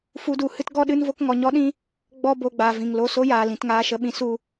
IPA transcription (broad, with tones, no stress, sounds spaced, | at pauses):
f u˦ d u˧ h ɨ˦ t ɡ ɔ˦ ɗ ɨ˦ n v o˦ k ŋ ɔ˧ ɲ ɔ˦ ɗ ĩ˦ | ɡ͡b ɔ˦ b o˧ ɡ͡b aː˨ v ĩ˨ ŋ l o˧ s o˦ j aː˨ l ĩ˨ t ŋ aː˧ ʃ ə˧ ɓ ĩ˧ s u˧